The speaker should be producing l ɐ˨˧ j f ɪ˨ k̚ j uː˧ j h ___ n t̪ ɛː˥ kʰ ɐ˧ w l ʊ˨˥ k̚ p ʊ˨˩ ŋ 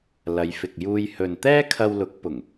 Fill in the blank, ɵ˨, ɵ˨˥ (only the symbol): ɵ˨